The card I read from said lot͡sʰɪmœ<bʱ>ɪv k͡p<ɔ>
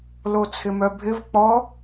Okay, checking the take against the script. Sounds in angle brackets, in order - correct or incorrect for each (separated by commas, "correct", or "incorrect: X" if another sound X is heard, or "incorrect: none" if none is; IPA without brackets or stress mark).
correct, correct